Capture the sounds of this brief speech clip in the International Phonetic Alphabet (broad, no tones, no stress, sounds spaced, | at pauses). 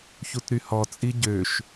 ç u t ɾ y h ɔ t͡sʼ i ɟ ø ʃ